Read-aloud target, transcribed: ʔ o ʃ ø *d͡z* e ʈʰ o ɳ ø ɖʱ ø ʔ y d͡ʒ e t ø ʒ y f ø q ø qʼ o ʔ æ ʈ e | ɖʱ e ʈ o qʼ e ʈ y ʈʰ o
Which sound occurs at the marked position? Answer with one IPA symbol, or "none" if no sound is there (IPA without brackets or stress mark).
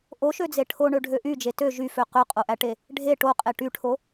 d͡z